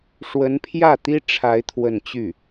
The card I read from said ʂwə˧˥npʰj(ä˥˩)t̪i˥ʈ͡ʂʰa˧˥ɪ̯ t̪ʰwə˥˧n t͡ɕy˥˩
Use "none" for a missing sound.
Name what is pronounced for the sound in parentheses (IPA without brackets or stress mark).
ä˥˩